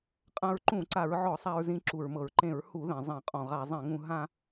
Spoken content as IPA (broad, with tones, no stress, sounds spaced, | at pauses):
qʼ ã˧ ɹ ǃ ũ˧˩˧ ǀ a˧˩˧ ɹ ʕ ɔ˧˩˧ sˤ a˧ ɹ z ĩ˧ ǁ u˩ ɹ m ɤ˩ ɹ ǃ ẽ˧˩˧ ɹ h u˧˩˧ ð ẽ˩ zˤ ẽ˧˩˧ qʼ ɔ̃˩ ʁ a˧˩˧ zˤ ẽ˧˩˧ ŋ ũ˧ ɦ ã˧